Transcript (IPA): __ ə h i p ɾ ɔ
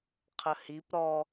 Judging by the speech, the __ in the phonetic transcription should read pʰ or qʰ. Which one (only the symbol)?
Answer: qʰ